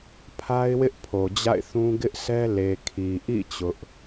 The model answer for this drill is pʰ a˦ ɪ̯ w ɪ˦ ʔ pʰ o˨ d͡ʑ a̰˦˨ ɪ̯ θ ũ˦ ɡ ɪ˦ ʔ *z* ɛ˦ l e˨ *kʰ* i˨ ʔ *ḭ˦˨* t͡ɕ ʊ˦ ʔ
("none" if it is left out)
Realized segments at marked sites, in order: s, kʰ, ḭ˦˨

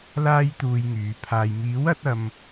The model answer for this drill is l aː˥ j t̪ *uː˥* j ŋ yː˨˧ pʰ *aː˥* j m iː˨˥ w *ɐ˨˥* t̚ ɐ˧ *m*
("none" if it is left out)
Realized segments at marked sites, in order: uː˧, aː˨, ɐ˨˥, m

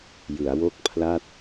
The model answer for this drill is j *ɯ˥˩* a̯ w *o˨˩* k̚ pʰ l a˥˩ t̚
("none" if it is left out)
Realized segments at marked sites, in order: ɯ˩˦, o˥˩

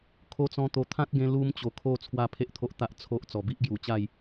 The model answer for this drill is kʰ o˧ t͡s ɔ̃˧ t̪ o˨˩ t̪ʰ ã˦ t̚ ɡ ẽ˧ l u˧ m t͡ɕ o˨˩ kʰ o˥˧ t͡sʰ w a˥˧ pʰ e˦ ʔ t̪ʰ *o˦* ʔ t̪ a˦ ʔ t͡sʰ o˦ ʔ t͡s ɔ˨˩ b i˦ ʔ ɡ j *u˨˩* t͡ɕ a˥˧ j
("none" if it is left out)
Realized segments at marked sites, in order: o˦, u˨˩

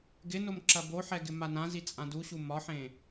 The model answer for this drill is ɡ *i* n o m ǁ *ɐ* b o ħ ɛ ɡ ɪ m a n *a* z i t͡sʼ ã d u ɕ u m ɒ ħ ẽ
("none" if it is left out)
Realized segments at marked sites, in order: ɪ, ɐ, ã

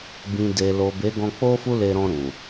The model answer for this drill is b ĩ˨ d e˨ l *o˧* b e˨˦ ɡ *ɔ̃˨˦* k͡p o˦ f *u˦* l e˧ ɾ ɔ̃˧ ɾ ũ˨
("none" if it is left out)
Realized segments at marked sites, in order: o˨, ɔ̃˧, u˦

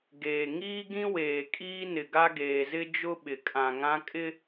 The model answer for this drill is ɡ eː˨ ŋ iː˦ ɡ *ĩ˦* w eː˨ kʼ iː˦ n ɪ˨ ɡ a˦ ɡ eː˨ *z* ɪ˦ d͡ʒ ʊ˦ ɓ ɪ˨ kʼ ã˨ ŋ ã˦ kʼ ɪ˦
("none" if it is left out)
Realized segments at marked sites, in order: ĩ˦, z

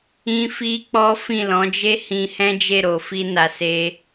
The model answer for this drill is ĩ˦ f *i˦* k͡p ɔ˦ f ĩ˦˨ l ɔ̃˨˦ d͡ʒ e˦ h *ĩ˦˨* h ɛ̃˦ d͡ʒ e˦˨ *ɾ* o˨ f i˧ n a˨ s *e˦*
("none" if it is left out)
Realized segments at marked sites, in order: i˦, ĩ˧, ɾ, e˧

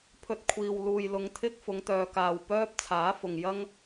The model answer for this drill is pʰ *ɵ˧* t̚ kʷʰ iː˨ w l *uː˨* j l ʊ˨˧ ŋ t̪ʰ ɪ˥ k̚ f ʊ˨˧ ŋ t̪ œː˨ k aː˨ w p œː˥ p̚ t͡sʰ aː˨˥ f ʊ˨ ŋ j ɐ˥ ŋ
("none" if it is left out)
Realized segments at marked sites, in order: ɵ˧, uː˨

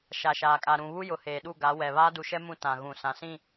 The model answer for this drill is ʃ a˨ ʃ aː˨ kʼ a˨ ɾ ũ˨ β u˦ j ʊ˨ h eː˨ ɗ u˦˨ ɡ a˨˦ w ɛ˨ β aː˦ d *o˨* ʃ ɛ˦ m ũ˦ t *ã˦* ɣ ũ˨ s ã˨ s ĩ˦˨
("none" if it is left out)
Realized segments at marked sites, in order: u˨, ã˨

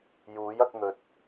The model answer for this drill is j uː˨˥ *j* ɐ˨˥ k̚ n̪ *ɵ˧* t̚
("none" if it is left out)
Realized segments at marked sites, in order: j, ɵ˨˥

